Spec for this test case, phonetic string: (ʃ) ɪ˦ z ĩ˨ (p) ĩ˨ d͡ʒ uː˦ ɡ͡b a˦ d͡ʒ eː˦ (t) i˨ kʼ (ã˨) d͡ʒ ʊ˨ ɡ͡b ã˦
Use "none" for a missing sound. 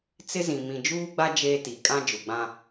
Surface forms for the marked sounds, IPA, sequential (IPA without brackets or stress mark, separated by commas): t͡s, m, t, ã˦